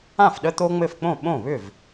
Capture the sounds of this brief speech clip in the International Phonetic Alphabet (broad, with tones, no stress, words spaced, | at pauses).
ã˥˩fɗə˦t̪o˦ ŋ͡mɘ˥˩fk͡põ˥˩ɓõ˥˩βʏ˥˩v